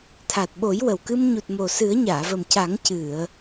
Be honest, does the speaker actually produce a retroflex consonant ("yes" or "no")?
no